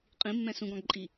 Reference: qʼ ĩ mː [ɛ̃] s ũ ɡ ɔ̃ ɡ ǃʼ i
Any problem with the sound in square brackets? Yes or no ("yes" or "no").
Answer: no